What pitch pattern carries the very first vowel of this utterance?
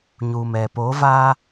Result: low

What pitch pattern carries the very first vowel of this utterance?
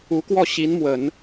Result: rising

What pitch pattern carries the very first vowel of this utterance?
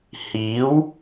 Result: rising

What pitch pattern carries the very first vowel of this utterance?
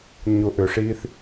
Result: low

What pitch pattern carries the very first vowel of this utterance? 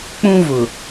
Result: high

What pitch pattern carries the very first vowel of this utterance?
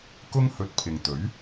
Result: high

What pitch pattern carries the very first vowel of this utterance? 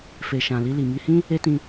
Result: low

